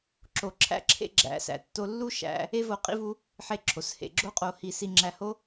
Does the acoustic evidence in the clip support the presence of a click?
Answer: yes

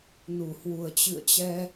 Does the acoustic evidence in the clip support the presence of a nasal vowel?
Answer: no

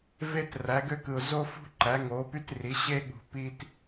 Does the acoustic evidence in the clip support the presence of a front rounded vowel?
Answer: yes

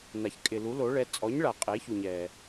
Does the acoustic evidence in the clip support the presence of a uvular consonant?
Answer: yes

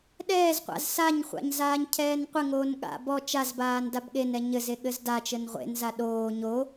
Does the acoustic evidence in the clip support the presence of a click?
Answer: no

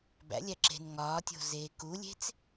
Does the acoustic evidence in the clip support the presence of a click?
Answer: yes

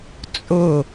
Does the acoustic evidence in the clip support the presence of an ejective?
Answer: yes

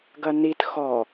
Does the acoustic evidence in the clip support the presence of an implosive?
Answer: no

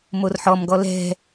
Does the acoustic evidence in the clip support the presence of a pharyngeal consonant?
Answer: yes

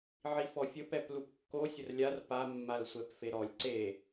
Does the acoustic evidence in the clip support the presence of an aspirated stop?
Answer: no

